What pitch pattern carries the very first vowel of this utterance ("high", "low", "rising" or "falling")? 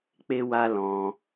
high